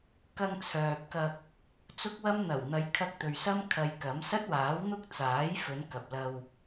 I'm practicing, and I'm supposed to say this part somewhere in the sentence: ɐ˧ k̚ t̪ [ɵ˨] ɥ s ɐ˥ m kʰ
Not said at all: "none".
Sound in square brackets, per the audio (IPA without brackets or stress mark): ɵ˨